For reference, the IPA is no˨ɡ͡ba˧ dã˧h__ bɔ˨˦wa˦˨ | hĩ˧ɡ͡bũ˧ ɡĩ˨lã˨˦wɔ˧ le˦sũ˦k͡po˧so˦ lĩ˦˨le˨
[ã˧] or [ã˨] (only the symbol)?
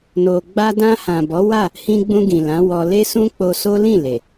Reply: ã˨